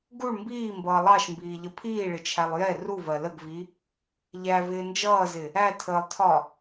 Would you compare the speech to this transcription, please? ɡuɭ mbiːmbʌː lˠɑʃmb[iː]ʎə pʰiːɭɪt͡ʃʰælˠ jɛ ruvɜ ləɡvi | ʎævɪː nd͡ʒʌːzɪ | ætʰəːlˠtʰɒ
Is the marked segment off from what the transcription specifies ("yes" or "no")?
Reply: no